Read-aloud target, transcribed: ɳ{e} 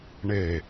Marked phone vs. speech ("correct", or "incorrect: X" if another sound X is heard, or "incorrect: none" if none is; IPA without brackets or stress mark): correct